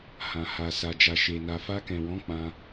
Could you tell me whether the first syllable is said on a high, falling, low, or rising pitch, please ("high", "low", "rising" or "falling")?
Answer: low